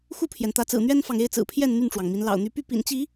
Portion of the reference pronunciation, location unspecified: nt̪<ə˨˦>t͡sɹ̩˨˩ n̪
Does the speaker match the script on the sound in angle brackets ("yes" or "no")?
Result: no